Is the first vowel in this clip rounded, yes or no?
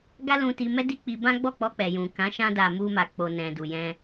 no